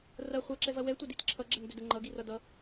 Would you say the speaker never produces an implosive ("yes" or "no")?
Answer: yes